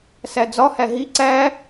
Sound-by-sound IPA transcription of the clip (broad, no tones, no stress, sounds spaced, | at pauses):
s æ d͡z ɒ h æ ɦ i ǀ æ